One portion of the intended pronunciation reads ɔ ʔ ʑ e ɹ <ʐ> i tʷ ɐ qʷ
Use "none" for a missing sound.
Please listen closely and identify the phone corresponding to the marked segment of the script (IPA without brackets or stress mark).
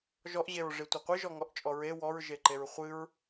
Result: ʐ